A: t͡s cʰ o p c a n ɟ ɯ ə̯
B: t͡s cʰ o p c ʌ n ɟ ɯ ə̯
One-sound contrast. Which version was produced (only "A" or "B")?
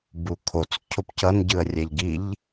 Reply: B